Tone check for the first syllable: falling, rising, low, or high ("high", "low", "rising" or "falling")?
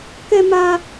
high